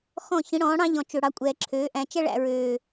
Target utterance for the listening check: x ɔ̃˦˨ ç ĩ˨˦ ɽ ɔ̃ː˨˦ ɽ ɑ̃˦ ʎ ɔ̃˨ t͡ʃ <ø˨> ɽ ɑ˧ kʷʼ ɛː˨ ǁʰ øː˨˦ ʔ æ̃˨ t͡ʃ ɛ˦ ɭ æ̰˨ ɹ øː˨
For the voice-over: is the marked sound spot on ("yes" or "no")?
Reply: yes